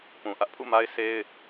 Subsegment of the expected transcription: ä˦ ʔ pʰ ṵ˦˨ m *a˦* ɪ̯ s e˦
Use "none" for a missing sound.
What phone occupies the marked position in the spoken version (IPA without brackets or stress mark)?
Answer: a˦